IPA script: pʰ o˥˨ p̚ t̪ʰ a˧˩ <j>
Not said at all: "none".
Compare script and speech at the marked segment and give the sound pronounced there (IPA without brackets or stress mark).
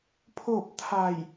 j